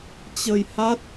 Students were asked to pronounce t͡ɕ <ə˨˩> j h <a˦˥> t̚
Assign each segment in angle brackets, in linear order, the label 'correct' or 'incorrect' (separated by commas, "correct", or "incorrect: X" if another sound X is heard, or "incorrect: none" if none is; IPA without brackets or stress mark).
incorrect: ə˧, correct